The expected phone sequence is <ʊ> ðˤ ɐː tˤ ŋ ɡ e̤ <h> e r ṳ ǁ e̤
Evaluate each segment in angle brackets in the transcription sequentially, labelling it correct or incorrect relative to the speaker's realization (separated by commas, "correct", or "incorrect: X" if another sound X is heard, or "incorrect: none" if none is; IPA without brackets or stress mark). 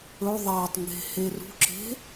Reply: incorrect: ɵ, correct